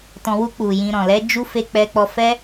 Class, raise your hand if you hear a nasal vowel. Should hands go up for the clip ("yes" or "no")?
yes